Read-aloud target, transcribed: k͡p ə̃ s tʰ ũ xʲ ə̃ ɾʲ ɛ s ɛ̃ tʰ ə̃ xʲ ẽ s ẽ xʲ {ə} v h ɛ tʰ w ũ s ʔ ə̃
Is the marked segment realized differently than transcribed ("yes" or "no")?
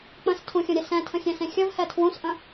no